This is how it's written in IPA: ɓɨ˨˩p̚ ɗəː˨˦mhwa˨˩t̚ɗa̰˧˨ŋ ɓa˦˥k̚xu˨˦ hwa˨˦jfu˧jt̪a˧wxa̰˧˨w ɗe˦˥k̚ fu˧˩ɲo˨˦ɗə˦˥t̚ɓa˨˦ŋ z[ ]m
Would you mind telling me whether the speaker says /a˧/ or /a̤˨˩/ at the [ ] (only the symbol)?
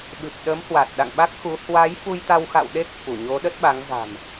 a̤˨˩